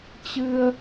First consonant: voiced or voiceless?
voiceless